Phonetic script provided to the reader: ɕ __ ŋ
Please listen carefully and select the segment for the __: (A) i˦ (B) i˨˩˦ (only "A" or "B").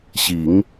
B